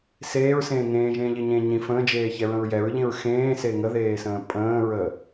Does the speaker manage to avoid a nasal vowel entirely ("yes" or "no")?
no